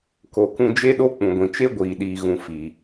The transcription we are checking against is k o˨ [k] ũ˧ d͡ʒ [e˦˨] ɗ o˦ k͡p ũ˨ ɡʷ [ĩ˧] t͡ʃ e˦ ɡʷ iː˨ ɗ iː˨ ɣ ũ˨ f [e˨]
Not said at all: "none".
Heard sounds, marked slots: k, e˦, ĩ˨, i˨

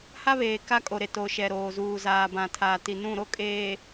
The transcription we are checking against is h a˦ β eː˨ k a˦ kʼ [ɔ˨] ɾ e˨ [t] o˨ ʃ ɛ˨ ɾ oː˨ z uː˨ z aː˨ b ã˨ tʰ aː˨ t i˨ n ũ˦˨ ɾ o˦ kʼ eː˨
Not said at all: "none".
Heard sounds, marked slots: o˨, t

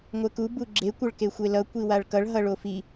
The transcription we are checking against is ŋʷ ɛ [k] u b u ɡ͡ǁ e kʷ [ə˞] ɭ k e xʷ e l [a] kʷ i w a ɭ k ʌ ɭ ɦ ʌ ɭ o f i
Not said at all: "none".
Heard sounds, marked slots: k, ʌ, ʌ

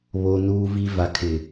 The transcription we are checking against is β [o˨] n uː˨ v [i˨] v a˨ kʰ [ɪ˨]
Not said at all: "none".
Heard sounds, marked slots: o˨, i˨, ɪ˨

